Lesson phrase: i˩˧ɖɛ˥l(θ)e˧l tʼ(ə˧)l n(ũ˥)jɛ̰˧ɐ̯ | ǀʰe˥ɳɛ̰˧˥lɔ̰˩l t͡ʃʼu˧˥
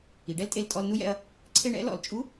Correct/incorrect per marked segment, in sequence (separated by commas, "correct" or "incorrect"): incorrect, incorrect, incorrect